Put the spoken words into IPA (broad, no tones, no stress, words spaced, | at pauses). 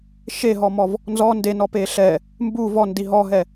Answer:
ʃeɦɔmɔv | nzɔ ndenɔpe ɬɛ | mbu vɔndi ɦɔɦɛ